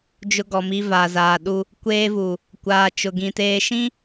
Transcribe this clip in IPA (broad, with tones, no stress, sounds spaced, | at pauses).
d͡ʒ ʊ˦ ɡ ɔ˨ m i˦ v aː˨ z aː˨ ɗ u˦ | kʷ eː˦ v u˨ | kʷ aː˨ t͡ʃ ʊ˨ ɡ ĩ˨ t eː˨ ʃ ĩ˦